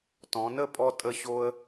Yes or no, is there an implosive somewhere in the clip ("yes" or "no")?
no